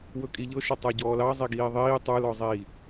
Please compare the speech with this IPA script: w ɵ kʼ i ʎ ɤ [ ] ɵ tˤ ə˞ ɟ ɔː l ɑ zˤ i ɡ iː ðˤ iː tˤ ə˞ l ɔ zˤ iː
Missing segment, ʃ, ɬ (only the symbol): ʃ